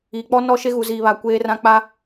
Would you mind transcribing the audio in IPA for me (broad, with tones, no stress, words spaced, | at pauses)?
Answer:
iː˨k͡pɔ˦ nɔ˦ʃe˦ɣu˨ziː˨ βa˨kʷeː˦rã˦ k͡pa˦